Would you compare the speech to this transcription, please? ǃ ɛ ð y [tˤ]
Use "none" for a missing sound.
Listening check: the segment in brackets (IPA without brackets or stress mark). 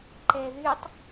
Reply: tˤ